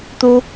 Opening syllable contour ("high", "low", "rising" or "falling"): high